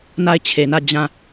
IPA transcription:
n a˦˨ ɪ̯ t͡ɕʰ e˨ n ä˦˨ d͡ʑ ã˦˨

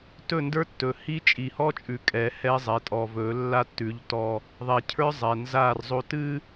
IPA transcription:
t ɵ˦˨ n d ə˞˦ tː ɵ˨ h i˦ t͡ʃʼ i˨ h ɔ˦ t͡ʃʼ ʉ˨ kʼ ɛ˨˦ h ɛ˦ zˤ ɛ˨ tʼ ɔ˨ v ɵ˨˦ lː a˦ tː ʉ˨˦ ʎ t ɔ˦ | ðˤ ɛ˨ cʰ ə˞˦ zˤ ɛ˨ n z a˦˨ r zˤ o˦ t ɨ˦

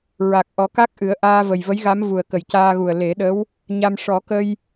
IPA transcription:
ɹ a˨˩ k̚ ʔ ɔ˨˩˦ k a˦˥ k̚ ʔ ɨ˨˩˦ ə̯ ʔ aː˧ v ə˨˩ j v ə˧˥ j ɣ a˧˥ m v u˨˩ ə̯ k ə˨˩ j c aː˧ ɣ u˨˩ ə̯ l e˨˩˦ ɗ ə˧˥ w | ɲ a˧ m ʂ ɔ˨˩˦ k ə˧ j

